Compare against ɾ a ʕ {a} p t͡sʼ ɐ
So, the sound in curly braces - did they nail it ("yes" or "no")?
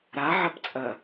no